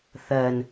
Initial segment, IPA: θ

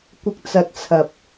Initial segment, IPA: kʷ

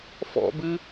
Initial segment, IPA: f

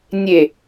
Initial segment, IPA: nʲ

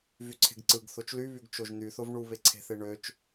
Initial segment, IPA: v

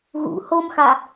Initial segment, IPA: ɣ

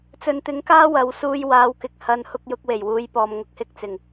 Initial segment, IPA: t͡s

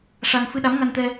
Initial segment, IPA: ʂ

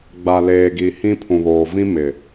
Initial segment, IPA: ɡ͡b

